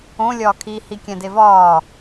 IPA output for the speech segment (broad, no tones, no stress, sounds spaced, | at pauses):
õ lʲ ɒː kʰ i h i kʲ æ̃ d e v ɒː